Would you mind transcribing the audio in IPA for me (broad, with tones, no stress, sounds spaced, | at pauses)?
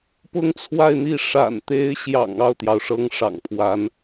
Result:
p ʊ˥˧ ŋ t͡sʰ w a˥˧ ɪ̯ n̪ i˥˩ ʂ a̰˨˩ n t̪ e˧˥ ɪ̯ ɕ j ɑ̰˨˩ ŋ ɑ˥˩ ʊ̯ t̪ j ɑ˩ ʊ̯ ʂ ɤ˧˥ ŋ ʂ ɑ̰˨˩ ŋ pʰ w a˧˥ n